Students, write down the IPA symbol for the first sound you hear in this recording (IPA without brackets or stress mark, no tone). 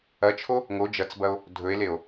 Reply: ɐ